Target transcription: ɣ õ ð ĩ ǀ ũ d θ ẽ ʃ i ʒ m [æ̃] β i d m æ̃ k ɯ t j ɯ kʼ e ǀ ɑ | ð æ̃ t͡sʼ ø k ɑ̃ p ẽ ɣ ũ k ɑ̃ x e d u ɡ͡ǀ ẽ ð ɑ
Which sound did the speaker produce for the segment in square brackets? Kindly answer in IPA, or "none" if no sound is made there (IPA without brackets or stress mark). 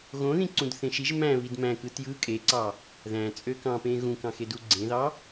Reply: æ̃